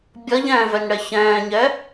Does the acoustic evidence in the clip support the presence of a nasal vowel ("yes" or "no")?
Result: yes